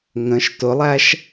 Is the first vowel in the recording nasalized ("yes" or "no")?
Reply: yes